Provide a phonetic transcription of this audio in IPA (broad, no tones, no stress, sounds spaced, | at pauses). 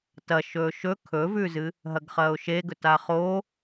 t ɐ ʃ ɵː ʃ ɵ kʰ ɵ v ʉ z ɨ | ɦ ɐ ɡ χ ɐː ʊ̯ ʃ e ɡ ɵ t a χ o